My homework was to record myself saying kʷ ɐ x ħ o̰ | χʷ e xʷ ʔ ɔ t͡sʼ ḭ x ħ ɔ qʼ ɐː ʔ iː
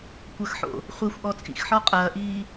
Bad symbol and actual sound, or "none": none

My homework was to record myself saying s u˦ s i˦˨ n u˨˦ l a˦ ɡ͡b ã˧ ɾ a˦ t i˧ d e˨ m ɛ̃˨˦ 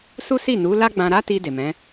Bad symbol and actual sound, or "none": none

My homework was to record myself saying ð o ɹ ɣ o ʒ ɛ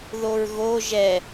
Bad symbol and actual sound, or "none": none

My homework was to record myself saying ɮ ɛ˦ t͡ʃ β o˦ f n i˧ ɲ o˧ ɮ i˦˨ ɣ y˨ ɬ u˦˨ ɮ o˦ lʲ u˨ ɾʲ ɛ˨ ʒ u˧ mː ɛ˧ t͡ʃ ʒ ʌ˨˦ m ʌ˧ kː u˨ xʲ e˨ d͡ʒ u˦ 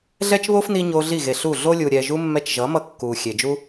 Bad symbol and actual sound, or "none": y˨ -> e˨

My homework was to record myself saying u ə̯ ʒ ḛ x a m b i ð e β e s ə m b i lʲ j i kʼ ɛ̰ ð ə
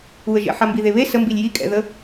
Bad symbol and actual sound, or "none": x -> ħ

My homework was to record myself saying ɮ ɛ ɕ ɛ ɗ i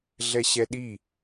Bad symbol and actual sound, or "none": none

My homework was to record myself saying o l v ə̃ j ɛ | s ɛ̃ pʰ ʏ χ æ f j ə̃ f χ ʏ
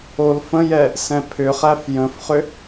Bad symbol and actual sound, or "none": v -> f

